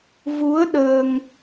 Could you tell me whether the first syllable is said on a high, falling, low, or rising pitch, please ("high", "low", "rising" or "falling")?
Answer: rising